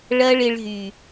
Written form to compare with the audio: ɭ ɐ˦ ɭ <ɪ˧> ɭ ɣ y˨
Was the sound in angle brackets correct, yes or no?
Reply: yes